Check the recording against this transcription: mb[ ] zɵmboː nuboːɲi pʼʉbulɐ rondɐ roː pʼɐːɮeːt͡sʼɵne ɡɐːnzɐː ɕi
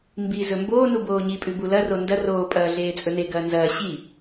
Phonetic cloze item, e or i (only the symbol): i